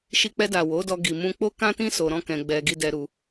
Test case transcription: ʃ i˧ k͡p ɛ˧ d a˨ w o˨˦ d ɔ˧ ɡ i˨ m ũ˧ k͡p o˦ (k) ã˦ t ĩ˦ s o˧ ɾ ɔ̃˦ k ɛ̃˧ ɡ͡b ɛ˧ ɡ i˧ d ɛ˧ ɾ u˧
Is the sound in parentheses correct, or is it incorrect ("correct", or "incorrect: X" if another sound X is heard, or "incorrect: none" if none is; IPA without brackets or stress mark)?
correct